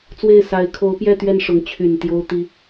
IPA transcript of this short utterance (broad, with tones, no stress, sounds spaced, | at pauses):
t͡s w e˥˩ ɪ̯ s a˧˥ ɪ̯ kʰ o˧˥ ʊ̯ p j ɛ˥˧ t̪ ɥ ɛ˥˩ n ʂ ʊ˧˥ ŋ t͡ɕʰ y˨˩ n t̪ j o˥ ʊ̯ t̪ i˥